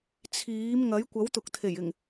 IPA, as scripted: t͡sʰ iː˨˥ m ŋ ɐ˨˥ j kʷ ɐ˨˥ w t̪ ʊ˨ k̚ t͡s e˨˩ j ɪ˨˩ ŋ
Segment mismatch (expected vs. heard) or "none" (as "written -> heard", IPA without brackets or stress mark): t͡s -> t̪ʰ